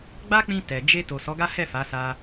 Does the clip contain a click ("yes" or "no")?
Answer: no